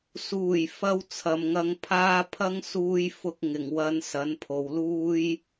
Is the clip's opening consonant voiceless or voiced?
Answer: voiceless